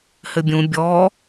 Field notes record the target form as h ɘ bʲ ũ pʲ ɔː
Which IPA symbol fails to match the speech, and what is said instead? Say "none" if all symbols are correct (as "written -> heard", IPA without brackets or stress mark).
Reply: pʲ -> bʲ